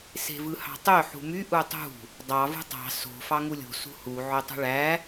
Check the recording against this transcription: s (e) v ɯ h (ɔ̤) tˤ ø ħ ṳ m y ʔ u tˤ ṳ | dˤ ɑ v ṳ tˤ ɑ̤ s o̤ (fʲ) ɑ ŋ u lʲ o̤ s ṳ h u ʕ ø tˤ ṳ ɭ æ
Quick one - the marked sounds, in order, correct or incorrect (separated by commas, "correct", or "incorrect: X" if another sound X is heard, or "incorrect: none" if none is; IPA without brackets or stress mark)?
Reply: incorrect: e̤, incorrect: ɑ̤, incorrect: f